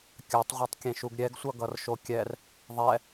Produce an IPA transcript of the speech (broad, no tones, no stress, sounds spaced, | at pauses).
kʲ a tˤ ʁʷ ɛ tˤ kʲ ẽ ʃ u ɡ ɾʲ ɛ ɡ sʷ ʌ ɡ ʌ r ʃ o kʲ ɛ r | ðˤ ɛ